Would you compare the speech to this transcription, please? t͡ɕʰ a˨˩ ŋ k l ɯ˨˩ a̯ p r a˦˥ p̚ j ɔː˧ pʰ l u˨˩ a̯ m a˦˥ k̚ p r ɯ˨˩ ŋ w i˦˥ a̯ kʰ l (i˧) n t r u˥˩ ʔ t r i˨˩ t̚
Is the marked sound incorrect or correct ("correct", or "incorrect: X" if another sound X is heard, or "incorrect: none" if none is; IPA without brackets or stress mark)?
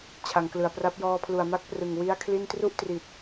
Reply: incorrect: i˥˩